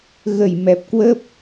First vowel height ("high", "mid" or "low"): mid